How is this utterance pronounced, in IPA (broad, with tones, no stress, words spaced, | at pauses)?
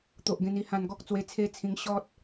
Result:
t̪o˨ʔɡẽ˧n i˧ hã˧nɡɔ˦k̚ t͡swe˧t͡sʰe˦t͡sʰĩ˧ŋ ɕɔ˦t̚